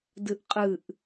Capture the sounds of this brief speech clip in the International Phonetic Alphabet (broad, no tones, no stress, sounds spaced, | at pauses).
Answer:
d ɨ ʔ qʼ ɨ ʔ